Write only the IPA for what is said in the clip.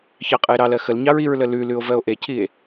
çɑqʼəe̯ɾɑlɜ xəlɲɑɹ iɹlə lʉlʉo̯ vɜo̯ʔecʰie̯

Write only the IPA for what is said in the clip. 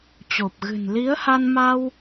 t͡ɕo˨˩p̚ɣɨ̤˨˩n li˨˦ə̯ha˧n ma˧w

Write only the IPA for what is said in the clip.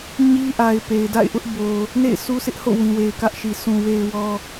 ɲi˦ʔa˨ɪ̯ pe˨ɪ̯da̰˦˨ɪ̯ʔʊ˦ʔ bo˨ | nḛ˦˨ɪ̯sʰu˦sʰɪ˦ʔho̰˦˨ wĩ˨we˨ɪ̯kä˦ʔʃi˨ sʰũ˨we˨ɪ̯ wɔ˦

